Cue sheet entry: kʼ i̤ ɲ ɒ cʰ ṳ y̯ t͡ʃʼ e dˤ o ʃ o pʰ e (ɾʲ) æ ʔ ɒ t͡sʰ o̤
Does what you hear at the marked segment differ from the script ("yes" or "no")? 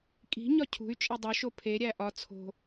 no